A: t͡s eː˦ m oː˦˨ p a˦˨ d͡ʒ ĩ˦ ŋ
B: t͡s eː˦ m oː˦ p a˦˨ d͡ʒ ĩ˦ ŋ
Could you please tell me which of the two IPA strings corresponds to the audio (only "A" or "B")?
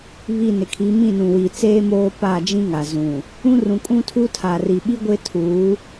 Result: B